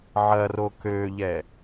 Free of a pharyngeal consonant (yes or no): no